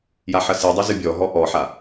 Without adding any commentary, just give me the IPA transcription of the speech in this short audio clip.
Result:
jaħɐsidˤɘ zɨbʲɔɦɔ ʔɔħa

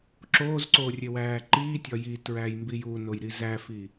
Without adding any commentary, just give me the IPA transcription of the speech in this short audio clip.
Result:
ǁoːzǀoː rʲewæːǃiːtʲɒ jitɹæj mbijunoj ɾizæfi

